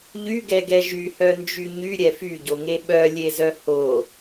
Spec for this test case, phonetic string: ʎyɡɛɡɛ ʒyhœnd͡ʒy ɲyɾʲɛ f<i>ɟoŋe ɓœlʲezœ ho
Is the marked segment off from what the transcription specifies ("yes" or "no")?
yes